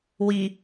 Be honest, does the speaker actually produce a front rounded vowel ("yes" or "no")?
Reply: no